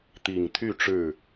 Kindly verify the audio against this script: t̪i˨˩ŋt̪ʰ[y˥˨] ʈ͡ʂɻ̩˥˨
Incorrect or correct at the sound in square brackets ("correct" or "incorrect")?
correct